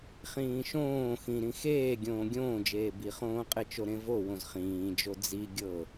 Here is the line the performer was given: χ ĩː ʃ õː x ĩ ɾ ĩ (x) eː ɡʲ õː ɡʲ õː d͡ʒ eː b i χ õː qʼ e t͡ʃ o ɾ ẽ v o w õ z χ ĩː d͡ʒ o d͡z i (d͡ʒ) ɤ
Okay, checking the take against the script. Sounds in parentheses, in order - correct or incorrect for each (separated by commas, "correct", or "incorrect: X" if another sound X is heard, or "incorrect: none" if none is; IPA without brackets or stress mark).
correct, incorrect: ɡʲ